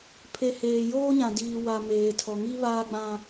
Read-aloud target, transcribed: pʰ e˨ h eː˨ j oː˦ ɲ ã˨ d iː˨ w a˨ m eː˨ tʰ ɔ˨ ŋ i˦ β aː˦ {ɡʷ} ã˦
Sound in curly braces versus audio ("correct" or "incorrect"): incorrect